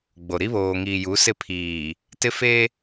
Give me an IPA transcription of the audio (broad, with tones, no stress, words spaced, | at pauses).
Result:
ɡ͡bo˨ ɾi˦βoː˨ŋiː˨ju˨˦ sɪ˦˨pʰiː˨ | tɪ˦ fe˦